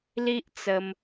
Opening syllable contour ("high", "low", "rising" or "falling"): high